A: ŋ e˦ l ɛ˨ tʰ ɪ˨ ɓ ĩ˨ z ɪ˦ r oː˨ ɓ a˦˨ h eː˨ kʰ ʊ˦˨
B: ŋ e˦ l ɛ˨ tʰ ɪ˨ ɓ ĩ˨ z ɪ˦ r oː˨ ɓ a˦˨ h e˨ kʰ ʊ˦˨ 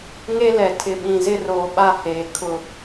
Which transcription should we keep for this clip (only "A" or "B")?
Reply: A